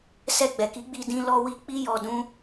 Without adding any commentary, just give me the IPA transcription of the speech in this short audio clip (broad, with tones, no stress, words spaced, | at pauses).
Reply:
sɛ˧ɡ͡bɛ˨ki˨˦ɡ͡bi˧ dĩ˧ lɔ˧wi˧ k͡pi˦jɔ˧dũ˦